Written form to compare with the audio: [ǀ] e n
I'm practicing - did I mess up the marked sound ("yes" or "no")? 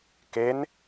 yes